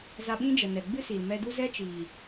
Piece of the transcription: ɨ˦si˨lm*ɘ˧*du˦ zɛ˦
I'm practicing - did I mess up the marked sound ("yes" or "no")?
yes